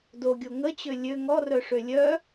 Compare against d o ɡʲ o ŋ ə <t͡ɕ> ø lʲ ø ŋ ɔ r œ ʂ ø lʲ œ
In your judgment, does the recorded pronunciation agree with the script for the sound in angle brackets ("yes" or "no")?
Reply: yes